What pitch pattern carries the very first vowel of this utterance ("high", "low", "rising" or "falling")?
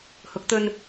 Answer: rising